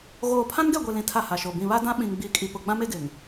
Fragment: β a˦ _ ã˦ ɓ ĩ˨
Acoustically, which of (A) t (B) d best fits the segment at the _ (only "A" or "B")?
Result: B